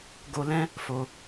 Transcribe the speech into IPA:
ɡ o˧ l ɛ̃˦ | f o˧

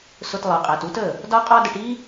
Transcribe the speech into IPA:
s ʊ˧ t lˠ ɜ˨ qʼ æ˨ t u˦ t ə˦˨ | d ɒ˦ qʼ ɒ˦ d ə˧ ʈ i˦

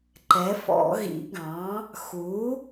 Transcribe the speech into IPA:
ǃ ɛ˩˥ f ɔ̰˨˩˦ ɣ ḭ˨˩˦ ɡ ɑ̃˩˥ | x u˩˥

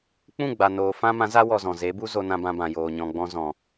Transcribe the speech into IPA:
k͡p ũ˦˨ ɡ͡b a˨ n oː˨ f ã˦ m ã˨˦ z a˦ w ɔ˧ z ɔ̃˨ z e˨˦ b u˦ z o˧ n ã˧ b ã˧ b ã˨ j oː˨ ɲ ɔ̃˨ ɡ͡b ɔ̃˧ z ɔ̃˨

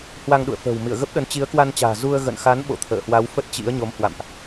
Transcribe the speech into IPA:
h w a˧ ŋ ɗ ṵ˧˨ ə̯ f ə̤ː˨˩ w m ḭ˧˨ ə̯ ɣ ə˦˥ p̚ ɗ ə˨˦ n t͡ɕ i˨˦ ə̯ k w a˧ n t͡ɕ a̤ː˨˩ z u˧ ə̯ ɣ ə̰˧˨ n x a˨˦ n ɓ o̰˧˨ t̪ʰ ə̰ː˧˨ h w a˨˦ w f ə˦˥ t̚ t͡ɕ ḭ˧˥ ə̯ ɲ o˨˦ m h w a̰˧˨ m ʔ

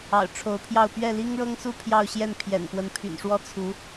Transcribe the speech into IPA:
ɑ̰˨˩ ʊ̯ ʈ͡ʂʰ o˧˥ ʊ̯ pʰ j ɑ˥˧ ʊ̯ p ɥ ɛ˥˩ l i˥ ŋ ɻ ɤ˥ ŋ s u˥˧ pʰ j ɑ˥˧ ʊ̯ ɕ j ɛ˥˩ n pʰ j ɛ̰˨˩ n p w ə˧˥ n pʰ y̰˨˩ n ʂ w ɔ˥ t͡sʰ u˧˥

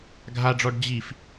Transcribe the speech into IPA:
ɡʱ a ɖ͡ʐ ɔ ɖ d͡ʑ i f

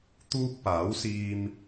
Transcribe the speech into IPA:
t̪ uː˥ k̚ p aː˨˥ w s iː˧ m

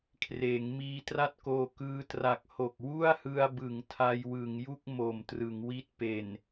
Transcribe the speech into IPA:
kʰ r eː˩˦ ŋ m iː˧ t r a˥˩ t̚ k oː˧ k ɯː˧ t r a˨˩ k̚ h o˨˩ k̚ w u˥˩ a̯ h ɯ˧ a̯ b ɯ˩˦ ŋ tʰ a˧ j w ɯ˩˦ ŋ j u˥˩ k̚ m o˨˩ m t r ɯ˩˦ ŋ w i˥˩ t̚ p e˨˩ n

